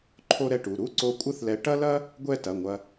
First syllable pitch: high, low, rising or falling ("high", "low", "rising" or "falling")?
high